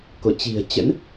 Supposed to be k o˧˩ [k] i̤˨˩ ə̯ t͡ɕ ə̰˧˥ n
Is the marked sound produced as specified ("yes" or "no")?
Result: no